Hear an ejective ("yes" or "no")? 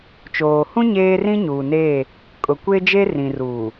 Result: yes